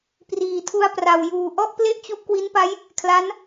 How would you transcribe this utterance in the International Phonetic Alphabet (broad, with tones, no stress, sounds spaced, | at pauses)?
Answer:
p r iː˨˩ tʰ u˧ a̯ p r a˨˩ w j uː˨˩ ʔ ɔ˥˩ ʔ p l e˥˩ ʔ t͡ɕ u˦˥ ʔ k w i˦˥ n p a˦˥ j | kʰ l a˦˥ n